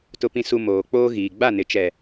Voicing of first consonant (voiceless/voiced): voiceless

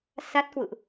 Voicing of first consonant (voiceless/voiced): voiceless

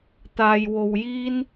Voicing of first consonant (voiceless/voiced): voiceless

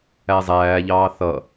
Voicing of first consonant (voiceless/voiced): voiced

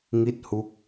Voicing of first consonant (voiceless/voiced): voiced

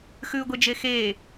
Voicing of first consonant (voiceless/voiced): voiceless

